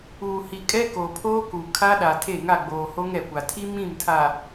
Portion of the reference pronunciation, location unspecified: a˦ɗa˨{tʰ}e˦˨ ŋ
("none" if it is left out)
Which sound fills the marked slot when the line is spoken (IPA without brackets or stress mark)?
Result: tʰ